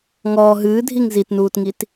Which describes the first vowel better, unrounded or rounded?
rounded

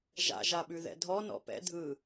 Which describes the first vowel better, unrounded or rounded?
unrounded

